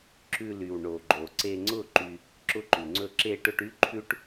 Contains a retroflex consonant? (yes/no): yes